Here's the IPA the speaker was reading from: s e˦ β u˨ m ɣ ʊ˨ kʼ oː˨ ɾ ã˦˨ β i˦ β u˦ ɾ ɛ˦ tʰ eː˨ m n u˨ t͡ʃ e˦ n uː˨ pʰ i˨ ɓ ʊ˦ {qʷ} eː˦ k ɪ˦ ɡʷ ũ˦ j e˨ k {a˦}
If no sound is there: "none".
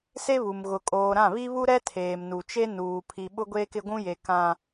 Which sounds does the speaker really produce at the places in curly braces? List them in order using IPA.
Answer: ɡʷ, ã˦

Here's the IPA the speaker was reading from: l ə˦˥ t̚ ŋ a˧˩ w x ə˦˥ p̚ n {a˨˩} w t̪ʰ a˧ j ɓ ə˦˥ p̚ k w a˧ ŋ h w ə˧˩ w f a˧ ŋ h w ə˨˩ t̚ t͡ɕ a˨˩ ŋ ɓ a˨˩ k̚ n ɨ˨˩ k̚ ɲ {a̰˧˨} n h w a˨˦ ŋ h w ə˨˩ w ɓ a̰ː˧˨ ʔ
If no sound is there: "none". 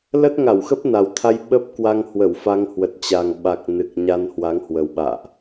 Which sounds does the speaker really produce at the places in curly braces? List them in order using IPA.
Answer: a˨˩, a˧

